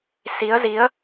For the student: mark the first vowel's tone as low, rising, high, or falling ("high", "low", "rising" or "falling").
rising